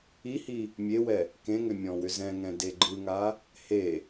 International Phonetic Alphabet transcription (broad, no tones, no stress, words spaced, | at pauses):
ihi | mʲewɛ | kẽŋʏ mʲɔ̃wʏzɛ̃ŋɛ̃ deɡ͡ǃɯŋa | he